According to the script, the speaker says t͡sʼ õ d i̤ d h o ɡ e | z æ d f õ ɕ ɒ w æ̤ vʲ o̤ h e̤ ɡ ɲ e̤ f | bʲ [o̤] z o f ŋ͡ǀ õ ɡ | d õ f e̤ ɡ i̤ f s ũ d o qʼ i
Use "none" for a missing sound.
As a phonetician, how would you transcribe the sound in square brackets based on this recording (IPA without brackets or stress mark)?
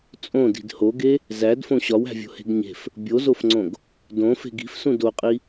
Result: o